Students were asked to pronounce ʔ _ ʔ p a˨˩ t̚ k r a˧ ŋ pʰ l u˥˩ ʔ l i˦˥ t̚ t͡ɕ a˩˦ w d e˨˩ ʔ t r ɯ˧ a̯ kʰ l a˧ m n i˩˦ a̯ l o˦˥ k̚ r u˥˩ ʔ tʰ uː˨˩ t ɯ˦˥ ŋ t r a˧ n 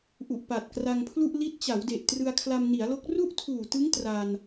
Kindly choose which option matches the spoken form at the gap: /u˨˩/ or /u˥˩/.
u˨˩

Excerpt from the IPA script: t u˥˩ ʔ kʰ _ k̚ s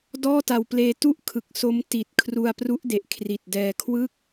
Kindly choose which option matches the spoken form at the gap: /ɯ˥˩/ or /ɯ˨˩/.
ɯ˨˩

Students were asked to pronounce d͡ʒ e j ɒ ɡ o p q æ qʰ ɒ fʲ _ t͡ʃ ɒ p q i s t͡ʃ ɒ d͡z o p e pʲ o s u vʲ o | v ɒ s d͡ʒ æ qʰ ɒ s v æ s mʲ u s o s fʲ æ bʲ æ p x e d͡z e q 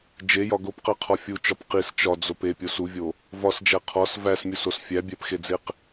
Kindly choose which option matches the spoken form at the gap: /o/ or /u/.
u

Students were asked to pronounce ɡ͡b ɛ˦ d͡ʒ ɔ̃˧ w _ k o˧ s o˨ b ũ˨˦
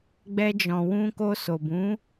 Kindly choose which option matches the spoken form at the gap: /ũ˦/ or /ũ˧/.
ũ˧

